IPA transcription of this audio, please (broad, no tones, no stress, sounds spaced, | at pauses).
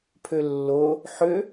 pʰ ø lː o | ħ ø